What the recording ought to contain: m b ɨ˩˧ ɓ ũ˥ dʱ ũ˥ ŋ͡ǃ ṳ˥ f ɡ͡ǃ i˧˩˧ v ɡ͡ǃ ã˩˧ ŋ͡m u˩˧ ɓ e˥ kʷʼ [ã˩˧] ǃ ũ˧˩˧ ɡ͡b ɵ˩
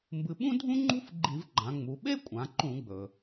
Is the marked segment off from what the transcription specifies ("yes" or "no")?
no